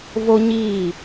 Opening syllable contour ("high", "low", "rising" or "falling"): high